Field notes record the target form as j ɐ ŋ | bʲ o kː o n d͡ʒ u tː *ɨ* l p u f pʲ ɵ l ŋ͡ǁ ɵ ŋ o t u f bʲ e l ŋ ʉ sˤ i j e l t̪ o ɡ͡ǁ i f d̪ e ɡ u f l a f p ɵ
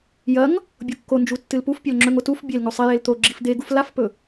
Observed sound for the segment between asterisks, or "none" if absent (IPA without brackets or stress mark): ɨ